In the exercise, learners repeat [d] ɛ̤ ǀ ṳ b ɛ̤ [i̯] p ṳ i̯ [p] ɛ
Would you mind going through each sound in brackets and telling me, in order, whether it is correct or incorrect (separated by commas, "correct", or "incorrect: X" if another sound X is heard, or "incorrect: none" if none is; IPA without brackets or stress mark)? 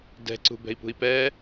correct, correct, correct